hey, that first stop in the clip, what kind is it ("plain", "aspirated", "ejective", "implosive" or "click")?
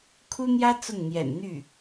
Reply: aspirated